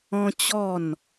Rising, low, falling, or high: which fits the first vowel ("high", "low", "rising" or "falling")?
high